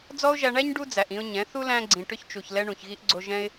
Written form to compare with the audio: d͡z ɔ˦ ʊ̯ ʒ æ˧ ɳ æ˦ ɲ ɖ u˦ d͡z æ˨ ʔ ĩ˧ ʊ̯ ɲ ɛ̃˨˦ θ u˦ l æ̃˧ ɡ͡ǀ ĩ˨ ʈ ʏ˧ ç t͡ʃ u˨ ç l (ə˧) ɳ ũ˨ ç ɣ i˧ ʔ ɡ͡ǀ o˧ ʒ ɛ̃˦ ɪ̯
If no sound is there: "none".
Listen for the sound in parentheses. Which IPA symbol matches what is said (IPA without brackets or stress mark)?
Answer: ɛ˧